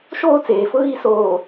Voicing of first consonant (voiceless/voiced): voiceless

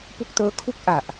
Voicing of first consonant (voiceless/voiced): voiceless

